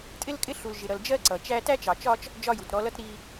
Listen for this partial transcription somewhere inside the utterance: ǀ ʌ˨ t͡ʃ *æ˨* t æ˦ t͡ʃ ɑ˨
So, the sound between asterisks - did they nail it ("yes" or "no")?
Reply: no